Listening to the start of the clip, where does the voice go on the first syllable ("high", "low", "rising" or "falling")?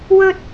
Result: high